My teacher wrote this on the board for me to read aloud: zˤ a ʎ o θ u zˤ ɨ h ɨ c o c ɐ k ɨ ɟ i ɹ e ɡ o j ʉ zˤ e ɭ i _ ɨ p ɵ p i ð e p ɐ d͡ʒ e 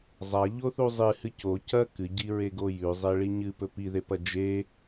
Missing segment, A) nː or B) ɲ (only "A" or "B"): B